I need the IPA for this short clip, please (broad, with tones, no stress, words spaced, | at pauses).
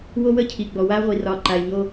wo˦wə˦cʰi˨ ɡ͡bɔ˨wa˦ʁʷi˨ rɒ˨ǃa˨ɪ̯ ɲo˦